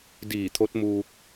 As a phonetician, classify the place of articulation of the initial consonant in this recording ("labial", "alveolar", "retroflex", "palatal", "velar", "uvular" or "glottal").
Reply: alveolar